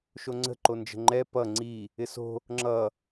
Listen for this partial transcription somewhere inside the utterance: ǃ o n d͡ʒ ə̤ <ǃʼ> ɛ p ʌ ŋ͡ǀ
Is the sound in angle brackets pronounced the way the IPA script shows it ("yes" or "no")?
no